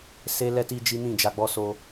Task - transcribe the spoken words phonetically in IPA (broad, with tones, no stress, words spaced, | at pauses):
se˦ lɛ˧ti˧ d͡ʒi˦nĩ˦˨d͡ʒa˧ɡ͡bɔ˦ so˧